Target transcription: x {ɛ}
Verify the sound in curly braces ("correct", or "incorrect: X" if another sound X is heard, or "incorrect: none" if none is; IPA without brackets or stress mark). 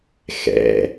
incorrect: ɛ̰